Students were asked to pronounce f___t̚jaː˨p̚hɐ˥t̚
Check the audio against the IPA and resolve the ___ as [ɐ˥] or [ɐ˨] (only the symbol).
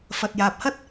ɐ˨